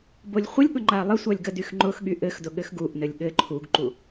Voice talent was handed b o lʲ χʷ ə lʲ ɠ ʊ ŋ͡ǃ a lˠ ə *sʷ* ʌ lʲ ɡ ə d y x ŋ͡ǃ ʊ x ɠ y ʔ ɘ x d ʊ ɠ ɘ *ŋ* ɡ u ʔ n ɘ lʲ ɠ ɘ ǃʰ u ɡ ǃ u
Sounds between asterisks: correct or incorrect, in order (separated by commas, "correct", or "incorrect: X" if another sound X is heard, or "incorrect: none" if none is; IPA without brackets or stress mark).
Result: correct, incorrect: x